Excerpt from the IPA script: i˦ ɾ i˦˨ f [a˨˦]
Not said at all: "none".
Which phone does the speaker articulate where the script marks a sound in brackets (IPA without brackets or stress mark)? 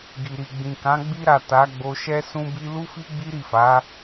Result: a˨˦